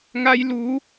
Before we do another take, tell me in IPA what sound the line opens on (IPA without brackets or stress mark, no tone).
ŋ